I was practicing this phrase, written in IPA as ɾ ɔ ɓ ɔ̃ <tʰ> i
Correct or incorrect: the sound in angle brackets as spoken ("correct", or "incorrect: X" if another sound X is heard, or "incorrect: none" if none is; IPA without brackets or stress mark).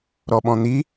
incorrect: n̪